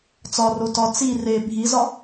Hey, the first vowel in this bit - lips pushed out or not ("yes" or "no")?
yes